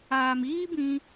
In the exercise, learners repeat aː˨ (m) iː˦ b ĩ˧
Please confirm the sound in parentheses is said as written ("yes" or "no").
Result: yes